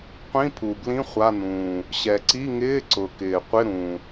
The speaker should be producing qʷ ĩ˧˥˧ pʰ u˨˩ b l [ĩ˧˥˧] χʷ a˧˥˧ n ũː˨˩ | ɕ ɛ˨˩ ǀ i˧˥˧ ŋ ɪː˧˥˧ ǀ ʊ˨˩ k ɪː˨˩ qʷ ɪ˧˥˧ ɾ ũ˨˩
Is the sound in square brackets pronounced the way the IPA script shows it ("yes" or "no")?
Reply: yes